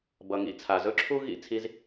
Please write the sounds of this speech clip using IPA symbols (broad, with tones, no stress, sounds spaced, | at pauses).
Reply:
b ʌ˩ ŋ ḭ˧ t͡sʰ a˩ z ɵ˥ ǁʰ u˥ ɣ ḭ˧ t͡sʰ i˧ z